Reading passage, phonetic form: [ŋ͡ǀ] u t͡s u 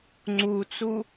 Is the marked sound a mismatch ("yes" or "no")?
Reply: no